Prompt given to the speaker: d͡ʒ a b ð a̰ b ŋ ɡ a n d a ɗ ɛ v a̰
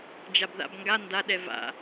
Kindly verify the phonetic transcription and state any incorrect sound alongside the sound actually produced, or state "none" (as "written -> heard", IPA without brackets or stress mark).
none